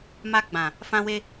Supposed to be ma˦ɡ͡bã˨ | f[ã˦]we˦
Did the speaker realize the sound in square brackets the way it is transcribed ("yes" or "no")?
yes